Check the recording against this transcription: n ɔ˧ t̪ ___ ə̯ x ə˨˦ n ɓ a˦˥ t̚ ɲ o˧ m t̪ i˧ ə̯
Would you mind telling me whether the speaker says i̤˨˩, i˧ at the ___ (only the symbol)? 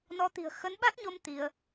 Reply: i̤˨˩